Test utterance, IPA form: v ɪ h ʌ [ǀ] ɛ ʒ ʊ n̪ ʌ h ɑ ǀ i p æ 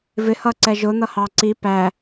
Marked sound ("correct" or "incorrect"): correct